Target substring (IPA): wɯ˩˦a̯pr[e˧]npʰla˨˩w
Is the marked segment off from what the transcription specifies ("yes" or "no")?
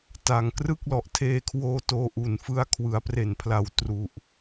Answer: yes